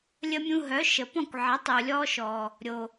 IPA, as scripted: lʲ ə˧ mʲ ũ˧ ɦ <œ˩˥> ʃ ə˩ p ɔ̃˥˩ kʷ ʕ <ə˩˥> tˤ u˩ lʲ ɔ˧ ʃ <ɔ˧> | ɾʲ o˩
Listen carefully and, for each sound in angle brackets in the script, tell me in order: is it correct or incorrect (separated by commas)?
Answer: correct, correct, incorrect